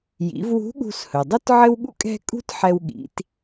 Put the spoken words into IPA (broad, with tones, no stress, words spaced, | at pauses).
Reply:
jḭ˩˧v wṳ˧˥ ɠṳ˧shɵ˩dˤɵ˥t ʕɘ˥wɠṵ˥kʼɛ̤˥ kʼṳ˥tħɛ˧w ɠḭ˩˧t